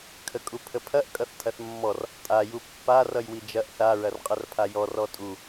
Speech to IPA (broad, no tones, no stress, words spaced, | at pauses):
kʰəkʼupʰəpʰɐʔ kʼʌθtʰɐθmːɔr | tʼa jupːa rʌjwid͡ʒɐʔ θa ɹɐrqʼɐrpʰajɔ rɔtʼu